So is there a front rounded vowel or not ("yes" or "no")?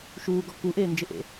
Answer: no